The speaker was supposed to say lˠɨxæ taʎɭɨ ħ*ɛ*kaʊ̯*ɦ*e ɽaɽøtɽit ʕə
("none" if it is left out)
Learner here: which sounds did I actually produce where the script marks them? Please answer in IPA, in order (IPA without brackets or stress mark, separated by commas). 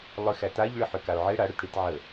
ø, ʕ